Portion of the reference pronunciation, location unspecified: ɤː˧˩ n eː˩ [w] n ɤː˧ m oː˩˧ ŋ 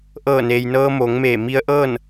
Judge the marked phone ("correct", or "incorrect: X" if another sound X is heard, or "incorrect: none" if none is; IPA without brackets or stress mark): incorrect: j